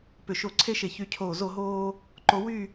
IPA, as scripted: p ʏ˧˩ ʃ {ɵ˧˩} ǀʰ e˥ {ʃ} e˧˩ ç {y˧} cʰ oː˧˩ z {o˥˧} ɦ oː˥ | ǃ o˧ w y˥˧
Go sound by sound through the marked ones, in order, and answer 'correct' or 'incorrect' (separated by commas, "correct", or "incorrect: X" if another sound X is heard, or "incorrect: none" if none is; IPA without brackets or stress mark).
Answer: incorrect: o˧˩, correct, correct, correct